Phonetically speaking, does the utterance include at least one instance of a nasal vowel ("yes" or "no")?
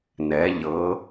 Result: no